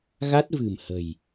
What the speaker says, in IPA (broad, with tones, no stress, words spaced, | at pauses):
ɣa˦˥t̚vɨ̤˨˩m hə̤˨˩j